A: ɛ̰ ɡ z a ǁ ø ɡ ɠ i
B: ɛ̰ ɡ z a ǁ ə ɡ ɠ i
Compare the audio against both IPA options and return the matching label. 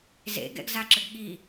B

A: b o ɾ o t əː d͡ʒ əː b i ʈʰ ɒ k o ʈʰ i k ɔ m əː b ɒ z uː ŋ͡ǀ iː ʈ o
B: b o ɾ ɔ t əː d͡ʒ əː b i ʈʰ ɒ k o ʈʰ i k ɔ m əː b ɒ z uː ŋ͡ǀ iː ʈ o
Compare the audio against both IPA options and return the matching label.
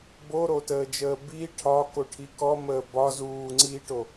A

